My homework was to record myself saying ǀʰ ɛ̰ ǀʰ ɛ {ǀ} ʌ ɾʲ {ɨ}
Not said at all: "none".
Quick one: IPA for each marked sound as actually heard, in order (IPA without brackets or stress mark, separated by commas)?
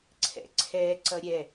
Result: ǀ, ɛ